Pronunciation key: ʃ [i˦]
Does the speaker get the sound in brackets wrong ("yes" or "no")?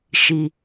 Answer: no